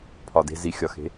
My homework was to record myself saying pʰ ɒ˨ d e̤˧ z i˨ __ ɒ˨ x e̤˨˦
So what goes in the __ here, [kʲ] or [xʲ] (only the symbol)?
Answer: xʲ